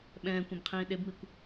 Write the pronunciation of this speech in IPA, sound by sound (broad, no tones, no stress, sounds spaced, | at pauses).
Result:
ɓ ɛ̃ː kʷ ɛ̃ b qʰ ĩː ɗ e b m i kʷ